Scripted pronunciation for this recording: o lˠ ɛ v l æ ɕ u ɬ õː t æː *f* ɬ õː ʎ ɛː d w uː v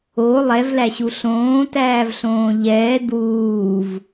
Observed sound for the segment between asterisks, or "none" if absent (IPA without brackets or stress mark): v